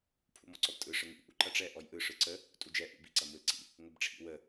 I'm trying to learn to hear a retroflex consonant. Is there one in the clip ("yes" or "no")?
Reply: yes